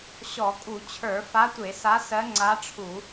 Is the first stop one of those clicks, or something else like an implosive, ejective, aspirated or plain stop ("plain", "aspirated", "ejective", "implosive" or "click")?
ejective